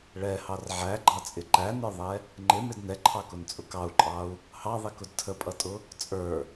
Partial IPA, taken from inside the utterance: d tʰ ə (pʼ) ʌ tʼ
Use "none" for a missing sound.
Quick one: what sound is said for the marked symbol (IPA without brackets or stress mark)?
pʼ